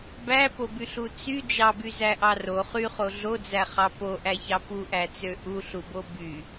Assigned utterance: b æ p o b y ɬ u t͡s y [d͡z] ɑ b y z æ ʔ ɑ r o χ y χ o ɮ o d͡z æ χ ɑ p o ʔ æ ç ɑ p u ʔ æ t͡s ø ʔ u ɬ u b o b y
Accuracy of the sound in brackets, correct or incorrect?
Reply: incorrect